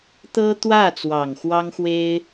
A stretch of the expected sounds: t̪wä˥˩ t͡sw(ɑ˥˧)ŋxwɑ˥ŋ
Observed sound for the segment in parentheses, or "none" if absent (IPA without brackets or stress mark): ɑ˨˩